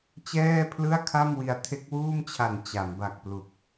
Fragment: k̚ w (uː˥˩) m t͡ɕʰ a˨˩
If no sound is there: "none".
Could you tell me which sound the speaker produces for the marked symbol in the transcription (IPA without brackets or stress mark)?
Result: uː˥˩